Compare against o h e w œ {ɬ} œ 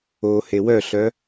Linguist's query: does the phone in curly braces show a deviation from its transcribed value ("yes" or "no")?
no